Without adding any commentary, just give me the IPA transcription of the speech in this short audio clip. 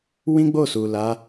w ĩ˦ ɡ͡b o˦˨ s u˨ l a˨˦

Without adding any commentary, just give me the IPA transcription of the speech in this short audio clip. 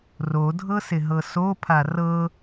r o dʱ ɤ s ɪ ɦ ɤ s o pʰ a r ɤ

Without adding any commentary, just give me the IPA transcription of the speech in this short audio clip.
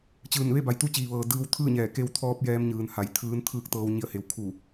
t͡ɕ ɯː˧˩ n ʋ e˥˨ b a˧˩ j t̪ u˧˥ t͡ɕ iː˩ ʋ ɤː˩ d ɯː˧ w t̪ʰ ɯː˥˨ ɲ ɛː˧˩ k e˧ w t̪ʰ ɔː˧ p̚ j ɛː˧ m ɲ ɯː˩ n h a˧˩ j t̪ʰ ɯː˧˥ n t̪ʰ ɯː˥˨ k̚ t̪ ɤː˧ w ɲ i˧˩ ə̯ h e˩˧ w kʰ u˧˩

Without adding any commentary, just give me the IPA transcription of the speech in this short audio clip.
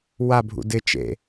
w a bʱ ṵ d ɪ t͡ʃ ḛ

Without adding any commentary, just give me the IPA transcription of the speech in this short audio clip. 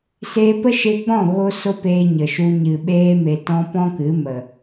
s eː˧ p ə˦ ʃ e˧ ɡ͡b ɔ̃˦˨ ɣ o˦ s o˦ p eː˧ ɲ ə˨ ʃ u˧ ɲ ɨ˨ ɓ eː˧ m e˨ t ɔ̃˧ p ɔ̃˦ k ɨ˨˦ m ə˨

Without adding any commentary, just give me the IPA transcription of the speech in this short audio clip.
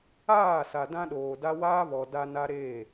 aː˦˨ s a˨ d ã˦ ɗ oː˨ d a˦ w aː˦ β ɔ˨ d a˦ n a˦ ɾ eː˦˨

